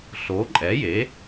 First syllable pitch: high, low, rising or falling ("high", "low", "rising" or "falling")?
rising